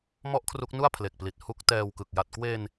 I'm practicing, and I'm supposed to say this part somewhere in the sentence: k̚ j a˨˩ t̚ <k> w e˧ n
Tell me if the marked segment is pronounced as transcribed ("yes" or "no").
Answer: yes